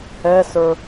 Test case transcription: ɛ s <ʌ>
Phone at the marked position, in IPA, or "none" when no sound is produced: ə˞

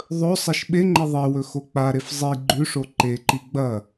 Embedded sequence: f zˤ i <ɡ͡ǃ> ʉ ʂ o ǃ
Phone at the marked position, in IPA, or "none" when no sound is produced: ɡ͡ǃ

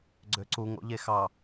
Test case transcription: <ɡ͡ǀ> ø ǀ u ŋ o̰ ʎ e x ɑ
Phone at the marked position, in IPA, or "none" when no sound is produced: ɡ͡ǀ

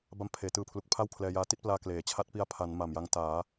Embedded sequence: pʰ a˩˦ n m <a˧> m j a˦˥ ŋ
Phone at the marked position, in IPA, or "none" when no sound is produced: a˨˩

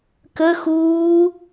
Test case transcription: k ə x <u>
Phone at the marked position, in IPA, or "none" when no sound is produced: uː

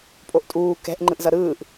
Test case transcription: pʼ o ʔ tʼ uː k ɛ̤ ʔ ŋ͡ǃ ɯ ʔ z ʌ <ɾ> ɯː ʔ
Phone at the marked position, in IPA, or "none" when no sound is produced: ɾ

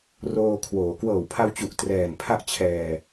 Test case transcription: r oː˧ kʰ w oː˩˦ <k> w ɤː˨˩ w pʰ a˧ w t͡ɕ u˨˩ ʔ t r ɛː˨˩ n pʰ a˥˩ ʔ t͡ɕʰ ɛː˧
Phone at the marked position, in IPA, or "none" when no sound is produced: k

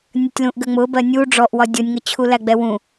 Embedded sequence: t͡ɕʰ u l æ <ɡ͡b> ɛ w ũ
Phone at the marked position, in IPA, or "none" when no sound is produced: ɡ͡b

